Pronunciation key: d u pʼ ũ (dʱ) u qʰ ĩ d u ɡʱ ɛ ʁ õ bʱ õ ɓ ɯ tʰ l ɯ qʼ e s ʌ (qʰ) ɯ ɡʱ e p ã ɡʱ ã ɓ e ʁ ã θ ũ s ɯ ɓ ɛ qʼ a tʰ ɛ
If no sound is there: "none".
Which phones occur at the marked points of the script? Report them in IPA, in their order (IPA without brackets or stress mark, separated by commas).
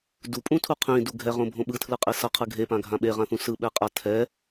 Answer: tʰ, qʰ